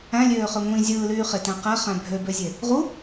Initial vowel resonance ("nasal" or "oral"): nasal